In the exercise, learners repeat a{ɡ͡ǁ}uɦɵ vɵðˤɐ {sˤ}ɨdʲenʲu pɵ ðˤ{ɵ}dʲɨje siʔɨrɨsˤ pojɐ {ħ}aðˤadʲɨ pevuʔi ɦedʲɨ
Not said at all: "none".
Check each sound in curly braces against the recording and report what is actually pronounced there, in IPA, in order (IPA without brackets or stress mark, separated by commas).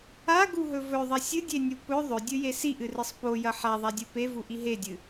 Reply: ɡ, sʲ, ɵ, ħ